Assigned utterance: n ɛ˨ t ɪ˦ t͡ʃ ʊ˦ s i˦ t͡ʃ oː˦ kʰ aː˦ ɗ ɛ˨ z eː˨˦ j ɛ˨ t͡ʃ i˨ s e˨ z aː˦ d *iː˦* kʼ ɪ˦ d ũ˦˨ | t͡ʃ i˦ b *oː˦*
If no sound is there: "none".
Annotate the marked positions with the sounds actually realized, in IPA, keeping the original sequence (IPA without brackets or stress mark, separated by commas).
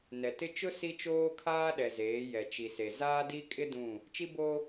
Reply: i˦, o˦